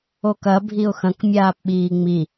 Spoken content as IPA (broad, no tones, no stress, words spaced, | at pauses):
okɐ bʱiʊ̯xɐ̃k mʲaːpɓiːŋ͡mi